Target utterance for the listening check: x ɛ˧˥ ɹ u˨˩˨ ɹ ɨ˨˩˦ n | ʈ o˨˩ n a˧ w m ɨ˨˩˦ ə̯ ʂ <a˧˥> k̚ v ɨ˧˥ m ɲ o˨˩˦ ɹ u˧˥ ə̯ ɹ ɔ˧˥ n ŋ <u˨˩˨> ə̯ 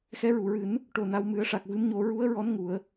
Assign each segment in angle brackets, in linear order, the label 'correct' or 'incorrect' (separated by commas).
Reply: incorrect, incorrect